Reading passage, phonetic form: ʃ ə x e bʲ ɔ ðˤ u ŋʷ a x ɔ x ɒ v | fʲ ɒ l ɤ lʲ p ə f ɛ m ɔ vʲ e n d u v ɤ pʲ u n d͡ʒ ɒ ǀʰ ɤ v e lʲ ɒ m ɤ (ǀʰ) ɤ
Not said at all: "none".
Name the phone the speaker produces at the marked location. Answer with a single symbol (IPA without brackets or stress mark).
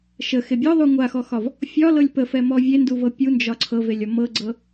ɡ͡ǀ